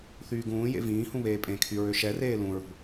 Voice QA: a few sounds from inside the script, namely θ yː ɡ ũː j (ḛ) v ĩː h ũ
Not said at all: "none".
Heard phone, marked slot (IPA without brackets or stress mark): ḛ